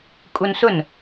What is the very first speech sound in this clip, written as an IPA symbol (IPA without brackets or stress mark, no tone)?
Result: kʼ